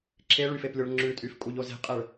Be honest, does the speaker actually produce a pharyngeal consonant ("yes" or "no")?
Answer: no